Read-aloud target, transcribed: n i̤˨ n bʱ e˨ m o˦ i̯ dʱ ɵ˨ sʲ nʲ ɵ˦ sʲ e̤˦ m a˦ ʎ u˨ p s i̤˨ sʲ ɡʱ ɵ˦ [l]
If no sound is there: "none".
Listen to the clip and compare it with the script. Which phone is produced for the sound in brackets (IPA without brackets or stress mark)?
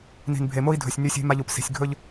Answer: ʎ